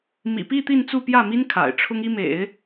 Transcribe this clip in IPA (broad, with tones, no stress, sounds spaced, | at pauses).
m ḭ˨˩ p i˥˧ t̪ i˥˧ n t͡s u˥˧ p j ä˥˩ m i˥ n kʰ a̰˨˩ ɪ̯ ʈ͡ʂʰ ʊ˥ ŋ i˥ m ḛ˨˩˦ ɪ̯